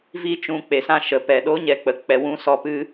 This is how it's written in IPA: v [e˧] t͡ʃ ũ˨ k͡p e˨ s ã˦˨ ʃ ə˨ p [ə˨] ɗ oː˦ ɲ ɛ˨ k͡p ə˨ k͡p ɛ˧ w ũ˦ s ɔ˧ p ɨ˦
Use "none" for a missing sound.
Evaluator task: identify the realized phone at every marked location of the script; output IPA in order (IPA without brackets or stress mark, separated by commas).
i˧, ɛ˨